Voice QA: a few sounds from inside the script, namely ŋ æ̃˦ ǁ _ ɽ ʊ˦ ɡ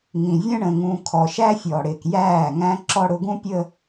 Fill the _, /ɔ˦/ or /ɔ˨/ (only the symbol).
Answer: ɔ˦